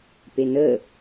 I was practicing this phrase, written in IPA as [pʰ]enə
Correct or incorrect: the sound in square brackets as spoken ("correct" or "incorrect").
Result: incorrect